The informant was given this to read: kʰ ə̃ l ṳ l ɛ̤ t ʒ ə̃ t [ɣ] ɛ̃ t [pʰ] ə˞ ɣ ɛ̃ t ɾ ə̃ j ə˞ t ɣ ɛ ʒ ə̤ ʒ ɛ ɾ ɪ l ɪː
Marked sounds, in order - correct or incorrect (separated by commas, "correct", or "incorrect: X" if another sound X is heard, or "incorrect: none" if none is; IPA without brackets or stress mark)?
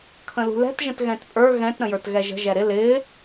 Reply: correct, incorrect: pʼ